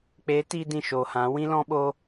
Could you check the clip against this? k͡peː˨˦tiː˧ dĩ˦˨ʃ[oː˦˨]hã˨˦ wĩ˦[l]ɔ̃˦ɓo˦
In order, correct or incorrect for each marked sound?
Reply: incorrect: oː˨, correct

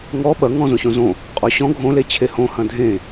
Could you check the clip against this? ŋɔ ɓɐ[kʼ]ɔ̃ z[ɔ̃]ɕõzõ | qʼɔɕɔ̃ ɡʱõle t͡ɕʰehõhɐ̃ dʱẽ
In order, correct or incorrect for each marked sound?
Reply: incorrect: ŋ, incorrect: õ

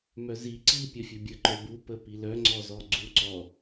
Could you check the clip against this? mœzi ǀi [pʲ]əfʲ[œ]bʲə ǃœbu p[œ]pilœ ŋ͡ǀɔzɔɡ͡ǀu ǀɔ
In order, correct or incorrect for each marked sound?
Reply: correct, correct, incorrect: ə

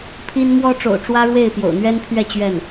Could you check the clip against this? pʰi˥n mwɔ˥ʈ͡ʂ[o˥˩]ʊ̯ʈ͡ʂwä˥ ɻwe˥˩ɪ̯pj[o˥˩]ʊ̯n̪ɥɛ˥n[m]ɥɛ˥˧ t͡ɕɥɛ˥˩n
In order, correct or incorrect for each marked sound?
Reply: incorrect: o̰˨˩, incorrect: o̰˨˩, incorrect: pʰ

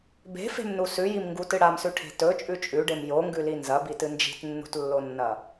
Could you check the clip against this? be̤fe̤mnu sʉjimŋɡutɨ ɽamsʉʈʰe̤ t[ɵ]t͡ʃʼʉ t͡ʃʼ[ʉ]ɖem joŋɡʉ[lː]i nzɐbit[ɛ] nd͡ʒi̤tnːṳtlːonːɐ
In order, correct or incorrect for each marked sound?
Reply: correct, correct, incorrect: l, incorrect: ɨ

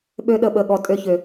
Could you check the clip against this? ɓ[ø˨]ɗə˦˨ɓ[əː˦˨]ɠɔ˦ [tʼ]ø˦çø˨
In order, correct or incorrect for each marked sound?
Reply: incorrect: ø˦, incorrect: ə˦˨, correct

